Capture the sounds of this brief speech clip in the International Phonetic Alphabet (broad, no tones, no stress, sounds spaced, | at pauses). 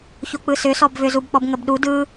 ç o k͡p ɯ s ʏ s ɔ b v ʏ z u b k͡p ɔ b ŋ ə b ɗ u d ɯ